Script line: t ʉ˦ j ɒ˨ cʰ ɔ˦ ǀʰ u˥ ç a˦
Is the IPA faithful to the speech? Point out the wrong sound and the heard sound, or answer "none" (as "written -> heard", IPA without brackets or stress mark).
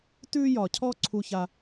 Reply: none